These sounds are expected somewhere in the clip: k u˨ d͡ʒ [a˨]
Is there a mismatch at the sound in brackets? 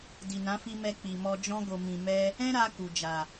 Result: no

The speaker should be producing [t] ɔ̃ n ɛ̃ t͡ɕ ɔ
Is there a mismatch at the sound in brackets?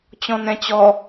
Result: yes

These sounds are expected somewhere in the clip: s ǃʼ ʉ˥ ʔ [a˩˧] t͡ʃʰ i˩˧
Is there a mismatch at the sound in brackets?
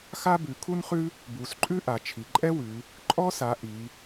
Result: no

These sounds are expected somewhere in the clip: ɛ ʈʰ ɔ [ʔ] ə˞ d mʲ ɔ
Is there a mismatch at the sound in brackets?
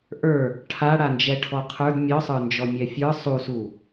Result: yes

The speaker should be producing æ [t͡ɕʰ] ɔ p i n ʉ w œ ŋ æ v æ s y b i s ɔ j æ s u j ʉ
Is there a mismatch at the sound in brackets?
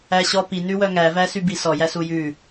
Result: yes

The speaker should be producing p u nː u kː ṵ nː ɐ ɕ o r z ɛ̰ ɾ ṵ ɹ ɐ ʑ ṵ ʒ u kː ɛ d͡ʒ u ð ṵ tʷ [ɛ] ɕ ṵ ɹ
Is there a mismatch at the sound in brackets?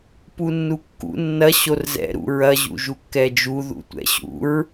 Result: yes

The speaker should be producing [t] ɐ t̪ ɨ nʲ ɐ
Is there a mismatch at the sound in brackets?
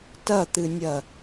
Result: no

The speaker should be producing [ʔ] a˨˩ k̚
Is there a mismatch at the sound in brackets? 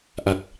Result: no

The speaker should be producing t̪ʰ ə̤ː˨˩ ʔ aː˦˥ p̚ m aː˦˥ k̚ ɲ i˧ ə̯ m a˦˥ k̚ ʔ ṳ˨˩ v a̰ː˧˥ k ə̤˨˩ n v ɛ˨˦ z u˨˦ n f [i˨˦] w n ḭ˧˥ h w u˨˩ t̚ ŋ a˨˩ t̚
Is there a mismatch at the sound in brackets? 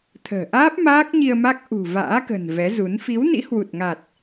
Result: no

